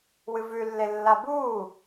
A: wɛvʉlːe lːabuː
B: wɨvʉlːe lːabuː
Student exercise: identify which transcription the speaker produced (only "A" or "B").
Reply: B